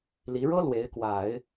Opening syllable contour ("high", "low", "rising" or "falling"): rising